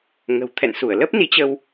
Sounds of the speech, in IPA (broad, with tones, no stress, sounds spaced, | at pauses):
ŋ ə̤˨˩ w t̪ʰ ɛ̰˧˨ n s u˧˩ ə̯ l ə˦˥ p̚ n i˨˦ t͡ɕ ə˧ w